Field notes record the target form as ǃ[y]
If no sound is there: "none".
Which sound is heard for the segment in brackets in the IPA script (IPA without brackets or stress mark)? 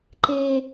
e